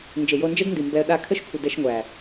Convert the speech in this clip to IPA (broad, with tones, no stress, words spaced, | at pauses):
nd͡ʒe˨jo˧nd͡ʒɛ˦dndi˨ mbɛ˧ə̯ɗa˦˨ kʰə˦ʃkʷʰə˨ dɛ˧ʃŋʷæ˨